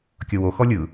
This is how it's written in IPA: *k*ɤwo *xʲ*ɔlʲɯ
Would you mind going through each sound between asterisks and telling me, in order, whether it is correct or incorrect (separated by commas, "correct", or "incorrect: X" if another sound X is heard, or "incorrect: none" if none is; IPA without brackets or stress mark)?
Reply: incorrect: kʲ, incorrect: x